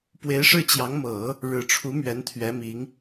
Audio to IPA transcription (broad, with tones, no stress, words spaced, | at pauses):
pwe˧˥ɪ̯ʂɻ̩˥˩t͡ɕjɑ˧˥ŋ mɤ˨˩˦ | ɻɻ̩˨˩ʈ͡ʂʰu˧˥ mɥɛ˧˥nt̪ʰɥɛ˧˥mi˧˥ŋ